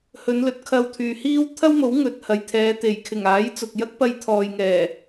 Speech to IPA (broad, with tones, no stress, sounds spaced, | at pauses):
h ɵ˨˧ n l ɵ˨˥ t̚ kʰ ɐ˧ w t̪ʰ yː˨ h iː˥ w t̪ʰ ɐ˥ w m o˨˥ w ŋ ɵ˨ t̚ h ɐ˨ j t̪ʰ ɛː˨˧ t̪ e˨˩ j kʰ ɪ˨˩ ŋ aː˨˥ j t͡s ʊ˨ k̚ j ɐ˥ k̚ p ɐ˧ j t̪ʰ ɔː˨ j ŋ ɛː˨˩